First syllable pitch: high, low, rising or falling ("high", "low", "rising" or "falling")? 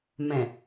low